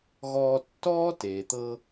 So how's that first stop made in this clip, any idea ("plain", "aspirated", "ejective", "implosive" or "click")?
plain